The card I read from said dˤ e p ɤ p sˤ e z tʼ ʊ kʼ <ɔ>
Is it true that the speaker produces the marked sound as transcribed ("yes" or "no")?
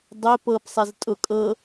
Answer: no